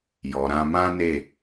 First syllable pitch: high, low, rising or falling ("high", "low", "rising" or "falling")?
low